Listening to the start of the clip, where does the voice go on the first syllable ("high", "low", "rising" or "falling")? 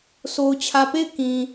low